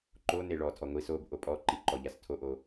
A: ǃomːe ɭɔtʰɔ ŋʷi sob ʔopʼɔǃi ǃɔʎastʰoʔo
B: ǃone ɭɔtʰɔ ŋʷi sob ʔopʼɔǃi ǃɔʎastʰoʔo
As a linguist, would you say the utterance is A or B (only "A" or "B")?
B